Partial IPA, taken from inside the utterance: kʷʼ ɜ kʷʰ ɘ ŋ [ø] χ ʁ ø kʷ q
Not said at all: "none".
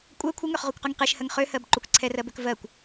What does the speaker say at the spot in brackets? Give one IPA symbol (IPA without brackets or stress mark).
ø